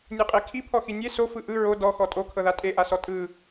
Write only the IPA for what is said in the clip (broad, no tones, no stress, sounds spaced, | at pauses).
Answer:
nʲ e qʼ e kʰ i pʰ ɔ x i nʲ e s o f ɯ ʔ ɯ ɹ o d ɔ x ɔ tʼ o kʰ ɤ ð a tʼ e ʔ a s ɔ tʼ ɯ